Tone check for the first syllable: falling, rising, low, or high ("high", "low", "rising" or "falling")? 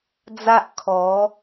high